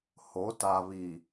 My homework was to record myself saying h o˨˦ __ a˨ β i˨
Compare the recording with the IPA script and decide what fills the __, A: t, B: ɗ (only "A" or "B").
A